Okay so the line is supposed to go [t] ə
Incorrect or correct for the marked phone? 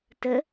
correct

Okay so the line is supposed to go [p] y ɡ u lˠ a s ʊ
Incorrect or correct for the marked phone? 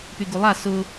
correct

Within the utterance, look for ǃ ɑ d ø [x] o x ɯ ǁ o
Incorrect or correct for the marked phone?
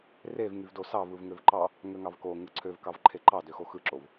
correct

